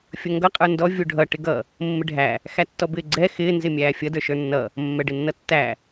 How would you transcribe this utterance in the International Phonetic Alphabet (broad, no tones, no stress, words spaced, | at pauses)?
fʲʌŋɡʌ qʼə˞ndɔ vʲuɖʱʌ ʈɪɡʌ | mːɪɖʱæ | xætːɔbɪːɡ͡ǀɛ xɪː nzɪmʲæːfʲʌ də˞ʃə˞nːʌ | mːɛɖɪnːʌtːæ